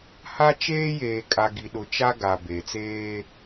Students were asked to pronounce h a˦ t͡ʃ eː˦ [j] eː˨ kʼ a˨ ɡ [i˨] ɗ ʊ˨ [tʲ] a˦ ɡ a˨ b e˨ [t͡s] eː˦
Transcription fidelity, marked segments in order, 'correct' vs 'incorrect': correct, correct, incorrect, correct

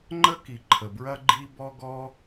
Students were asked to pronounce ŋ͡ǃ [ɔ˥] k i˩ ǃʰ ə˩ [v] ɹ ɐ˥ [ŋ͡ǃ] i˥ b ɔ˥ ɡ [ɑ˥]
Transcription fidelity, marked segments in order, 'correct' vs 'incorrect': incorrect, incorrect, incorrect, incorrect

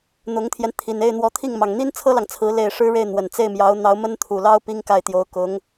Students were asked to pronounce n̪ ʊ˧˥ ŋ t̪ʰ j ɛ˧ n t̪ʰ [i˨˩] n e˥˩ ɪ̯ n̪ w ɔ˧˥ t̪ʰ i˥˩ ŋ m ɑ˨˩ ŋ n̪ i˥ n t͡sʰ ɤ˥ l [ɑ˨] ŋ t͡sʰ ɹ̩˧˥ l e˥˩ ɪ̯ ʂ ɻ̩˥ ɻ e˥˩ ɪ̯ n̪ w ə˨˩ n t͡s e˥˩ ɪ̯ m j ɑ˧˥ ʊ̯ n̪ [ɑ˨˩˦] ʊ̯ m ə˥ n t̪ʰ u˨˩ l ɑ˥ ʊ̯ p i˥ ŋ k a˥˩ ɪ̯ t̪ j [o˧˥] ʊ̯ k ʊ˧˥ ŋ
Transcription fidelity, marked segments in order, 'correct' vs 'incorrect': correct, correct, incorrect, correct

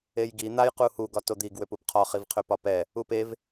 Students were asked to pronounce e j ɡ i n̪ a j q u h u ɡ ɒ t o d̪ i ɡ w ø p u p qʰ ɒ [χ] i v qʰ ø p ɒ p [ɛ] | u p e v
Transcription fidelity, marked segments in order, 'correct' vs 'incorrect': correct, correct

